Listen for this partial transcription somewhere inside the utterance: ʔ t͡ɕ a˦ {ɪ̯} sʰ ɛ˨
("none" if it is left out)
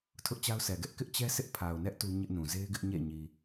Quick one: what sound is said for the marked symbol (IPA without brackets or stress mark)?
ʊ̯